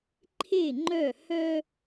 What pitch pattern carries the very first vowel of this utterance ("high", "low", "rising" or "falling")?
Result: falling